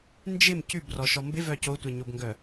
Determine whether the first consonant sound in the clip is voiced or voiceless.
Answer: voiced